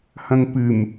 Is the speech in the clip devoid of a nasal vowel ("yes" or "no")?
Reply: no